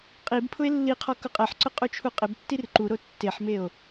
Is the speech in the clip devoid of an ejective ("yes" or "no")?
no